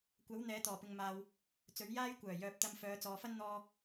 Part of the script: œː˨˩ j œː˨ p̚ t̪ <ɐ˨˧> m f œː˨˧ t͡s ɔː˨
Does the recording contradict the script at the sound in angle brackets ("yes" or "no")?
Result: yes